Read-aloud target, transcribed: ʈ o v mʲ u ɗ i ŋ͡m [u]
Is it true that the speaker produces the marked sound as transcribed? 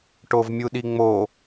no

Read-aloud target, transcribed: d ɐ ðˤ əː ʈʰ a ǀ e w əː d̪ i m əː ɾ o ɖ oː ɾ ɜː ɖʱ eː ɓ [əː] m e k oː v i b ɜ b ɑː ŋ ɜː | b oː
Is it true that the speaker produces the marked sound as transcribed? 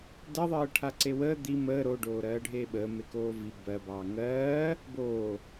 yes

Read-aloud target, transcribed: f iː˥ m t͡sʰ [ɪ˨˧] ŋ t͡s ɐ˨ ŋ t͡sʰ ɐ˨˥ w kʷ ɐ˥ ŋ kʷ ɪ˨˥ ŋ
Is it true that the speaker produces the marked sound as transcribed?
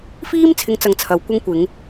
yes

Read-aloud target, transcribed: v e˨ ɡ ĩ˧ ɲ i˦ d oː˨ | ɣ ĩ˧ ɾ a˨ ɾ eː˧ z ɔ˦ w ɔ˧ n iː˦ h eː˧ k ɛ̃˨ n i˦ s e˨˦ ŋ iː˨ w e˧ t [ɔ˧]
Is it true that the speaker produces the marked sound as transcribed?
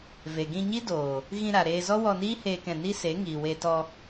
yes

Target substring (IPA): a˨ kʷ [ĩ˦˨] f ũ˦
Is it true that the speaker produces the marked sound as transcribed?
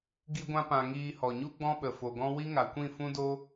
yes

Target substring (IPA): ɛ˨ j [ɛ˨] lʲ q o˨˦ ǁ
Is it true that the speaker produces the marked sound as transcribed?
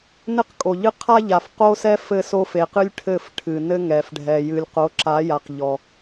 no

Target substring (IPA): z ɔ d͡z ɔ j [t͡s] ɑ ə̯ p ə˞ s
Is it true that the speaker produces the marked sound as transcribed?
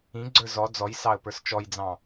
no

